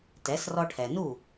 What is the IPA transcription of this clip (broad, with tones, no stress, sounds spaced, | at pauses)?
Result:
t ɛ˩˥ s r ɔ˧ ʈʰ ɛ˩ n u˥˩